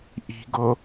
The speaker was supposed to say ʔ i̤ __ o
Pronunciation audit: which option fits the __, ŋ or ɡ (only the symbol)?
ɡ